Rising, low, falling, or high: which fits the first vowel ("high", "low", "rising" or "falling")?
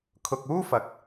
low